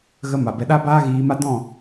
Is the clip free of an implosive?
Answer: no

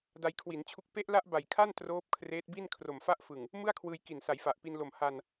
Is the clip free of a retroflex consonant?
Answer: yes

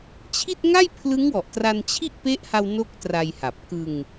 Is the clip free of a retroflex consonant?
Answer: yes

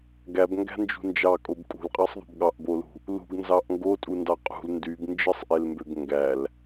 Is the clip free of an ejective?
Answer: no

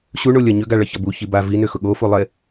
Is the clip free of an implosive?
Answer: no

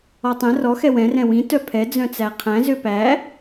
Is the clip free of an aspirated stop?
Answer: no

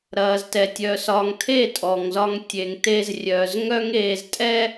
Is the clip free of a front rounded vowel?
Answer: no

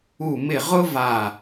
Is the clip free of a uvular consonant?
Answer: no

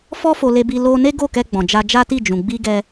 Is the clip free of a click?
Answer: yes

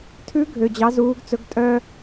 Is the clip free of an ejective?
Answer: no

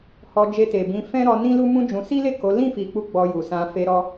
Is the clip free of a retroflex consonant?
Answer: yes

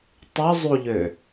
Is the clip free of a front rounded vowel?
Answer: no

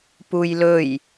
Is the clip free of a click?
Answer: yes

